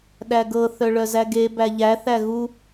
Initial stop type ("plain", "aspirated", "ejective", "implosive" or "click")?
implosive